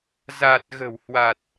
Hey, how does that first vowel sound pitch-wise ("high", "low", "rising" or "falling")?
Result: low